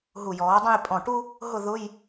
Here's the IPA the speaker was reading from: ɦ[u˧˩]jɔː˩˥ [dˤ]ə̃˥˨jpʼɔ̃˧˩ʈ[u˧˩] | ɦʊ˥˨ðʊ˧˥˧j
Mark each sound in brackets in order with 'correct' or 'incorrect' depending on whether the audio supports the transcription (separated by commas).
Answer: correct, correct, incorrect